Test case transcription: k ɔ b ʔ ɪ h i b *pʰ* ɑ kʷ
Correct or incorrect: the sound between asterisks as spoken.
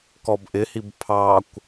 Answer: correct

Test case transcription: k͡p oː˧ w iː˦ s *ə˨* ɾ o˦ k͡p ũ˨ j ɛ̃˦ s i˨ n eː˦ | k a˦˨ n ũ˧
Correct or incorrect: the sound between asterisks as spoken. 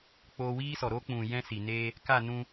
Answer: incorrect: ɔ˨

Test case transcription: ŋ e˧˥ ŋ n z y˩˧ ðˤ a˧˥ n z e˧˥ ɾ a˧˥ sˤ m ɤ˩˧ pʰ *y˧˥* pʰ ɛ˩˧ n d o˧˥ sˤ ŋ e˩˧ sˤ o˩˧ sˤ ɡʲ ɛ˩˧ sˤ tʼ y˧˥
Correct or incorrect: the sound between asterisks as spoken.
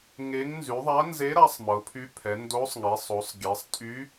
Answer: correct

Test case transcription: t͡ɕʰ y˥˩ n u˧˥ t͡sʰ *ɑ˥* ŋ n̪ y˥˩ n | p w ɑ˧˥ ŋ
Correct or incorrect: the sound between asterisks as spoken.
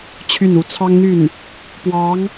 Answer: correct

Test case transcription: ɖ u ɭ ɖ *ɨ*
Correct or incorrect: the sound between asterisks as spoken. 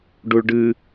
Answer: correct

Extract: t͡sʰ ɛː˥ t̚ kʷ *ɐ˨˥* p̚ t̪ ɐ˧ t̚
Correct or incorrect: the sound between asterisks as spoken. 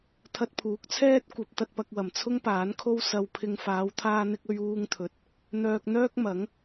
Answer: correct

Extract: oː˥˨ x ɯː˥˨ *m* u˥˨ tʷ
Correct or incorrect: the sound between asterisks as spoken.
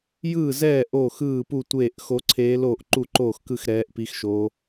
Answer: incorrect: p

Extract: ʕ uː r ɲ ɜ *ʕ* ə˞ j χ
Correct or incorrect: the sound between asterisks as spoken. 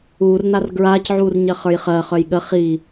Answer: incorrect: χ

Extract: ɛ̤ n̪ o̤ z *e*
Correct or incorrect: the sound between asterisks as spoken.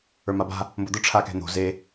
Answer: correct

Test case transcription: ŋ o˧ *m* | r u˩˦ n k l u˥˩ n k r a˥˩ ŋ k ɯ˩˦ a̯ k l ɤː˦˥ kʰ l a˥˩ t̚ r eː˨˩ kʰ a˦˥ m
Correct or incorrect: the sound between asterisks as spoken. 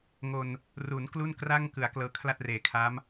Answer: incorrect: n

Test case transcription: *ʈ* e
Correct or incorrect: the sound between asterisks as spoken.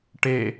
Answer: correct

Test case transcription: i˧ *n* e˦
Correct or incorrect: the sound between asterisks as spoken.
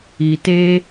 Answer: incorrect: t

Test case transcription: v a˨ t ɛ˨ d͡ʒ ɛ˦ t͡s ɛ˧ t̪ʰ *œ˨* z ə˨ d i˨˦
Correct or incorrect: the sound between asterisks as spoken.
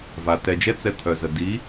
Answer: correct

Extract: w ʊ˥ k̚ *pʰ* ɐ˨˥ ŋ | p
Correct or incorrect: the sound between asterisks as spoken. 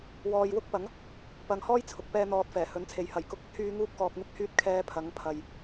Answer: incorrect: p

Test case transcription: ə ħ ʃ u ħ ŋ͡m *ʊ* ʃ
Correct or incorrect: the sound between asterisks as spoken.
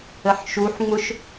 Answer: correct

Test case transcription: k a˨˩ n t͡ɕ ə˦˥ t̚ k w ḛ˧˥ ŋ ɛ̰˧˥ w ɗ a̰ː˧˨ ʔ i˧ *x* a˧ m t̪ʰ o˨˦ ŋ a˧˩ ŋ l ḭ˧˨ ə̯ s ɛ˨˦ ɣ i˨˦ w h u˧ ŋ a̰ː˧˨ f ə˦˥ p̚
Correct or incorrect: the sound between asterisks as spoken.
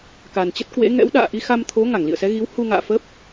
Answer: correct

